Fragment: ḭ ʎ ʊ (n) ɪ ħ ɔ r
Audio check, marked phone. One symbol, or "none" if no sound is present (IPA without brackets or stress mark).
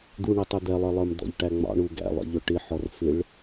ʈ